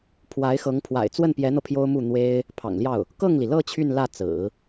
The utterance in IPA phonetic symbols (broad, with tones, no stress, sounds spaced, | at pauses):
pʰ w a˧˥ ɪ̯ x ɤ˧˥ ŋ pʰ w a̰˨˩ ɪ̯ t͡s w ə˥˩ n p j ɛ˧˥ n̪ ɤ˧ pʰ j o˥ ʊ̯ m u˥˩ n̪ w e˥ ɪ̯ | pʰ ɑ̰˨˩ ŋ l j ɑ˥˩ ʊ̯ | k ɤ˥˩ ŋ l i˩ l ɤ˥˧ t͡ɕʰ y˥˧ n l ä˥˩ t͡s ɹ̩˨˩˦